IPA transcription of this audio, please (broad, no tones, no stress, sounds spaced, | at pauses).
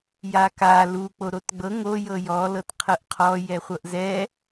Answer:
j a k a l u k͡p o ɾ o t ɡ͡b ɤ ŋ o j ɤ j ɔ l ɤ t qʰ ɤ ʔ qʰ ɔ j ɛ χʷ ɤ ʔ z ɛ